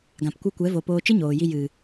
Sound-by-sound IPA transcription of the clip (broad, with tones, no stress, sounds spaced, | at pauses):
ɡ ã˨ p kʷ ɨ˧ kʷ ɛ˨˦ v o˧ p oː˧ t͡ʃ ɨ˦ ɲ oː˨ j i˧ j ɨ˨